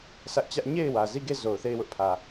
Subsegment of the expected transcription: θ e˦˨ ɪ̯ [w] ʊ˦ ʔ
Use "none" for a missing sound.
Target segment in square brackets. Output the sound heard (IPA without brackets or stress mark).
w